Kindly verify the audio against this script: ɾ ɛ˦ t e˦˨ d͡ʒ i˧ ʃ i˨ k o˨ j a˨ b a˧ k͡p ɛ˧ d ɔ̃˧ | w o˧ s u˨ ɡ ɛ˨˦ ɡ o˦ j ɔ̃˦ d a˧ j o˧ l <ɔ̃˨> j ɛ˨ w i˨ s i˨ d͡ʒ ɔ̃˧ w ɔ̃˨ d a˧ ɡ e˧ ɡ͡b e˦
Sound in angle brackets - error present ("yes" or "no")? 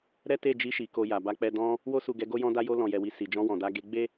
no